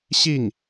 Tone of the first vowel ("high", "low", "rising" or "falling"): falling